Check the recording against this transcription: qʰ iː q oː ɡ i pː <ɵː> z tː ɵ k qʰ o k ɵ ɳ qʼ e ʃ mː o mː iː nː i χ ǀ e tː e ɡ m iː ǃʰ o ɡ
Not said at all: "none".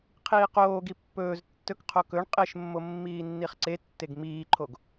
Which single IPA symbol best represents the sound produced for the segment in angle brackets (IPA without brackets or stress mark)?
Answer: ɵː